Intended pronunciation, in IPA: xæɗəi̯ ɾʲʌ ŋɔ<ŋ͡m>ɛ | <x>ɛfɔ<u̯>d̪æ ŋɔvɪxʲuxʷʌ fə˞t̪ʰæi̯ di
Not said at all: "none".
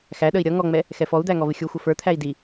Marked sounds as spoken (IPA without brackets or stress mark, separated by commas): ŋ͡m, x, u̯